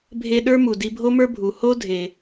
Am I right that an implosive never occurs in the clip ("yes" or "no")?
no